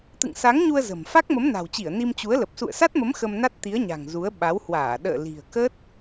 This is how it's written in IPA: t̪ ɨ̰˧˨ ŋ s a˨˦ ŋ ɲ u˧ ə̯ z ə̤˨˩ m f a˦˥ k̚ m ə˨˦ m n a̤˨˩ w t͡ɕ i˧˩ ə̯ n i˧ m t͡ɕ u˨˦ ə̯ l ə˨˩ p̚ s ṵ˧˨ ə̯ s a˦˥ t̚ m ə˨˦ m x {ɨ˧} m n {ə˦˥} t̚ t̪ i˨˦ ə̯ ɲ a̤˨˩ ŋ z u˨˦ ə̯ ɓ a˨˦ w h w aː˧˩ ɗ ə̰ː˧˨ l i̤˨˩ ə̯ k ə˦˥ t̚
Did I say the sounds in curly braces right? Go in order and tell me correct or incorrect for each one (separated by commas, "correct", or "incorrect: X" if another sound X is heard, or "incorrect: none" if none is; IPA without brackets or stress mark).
incorrect: ə˧, incorrect: a˦˥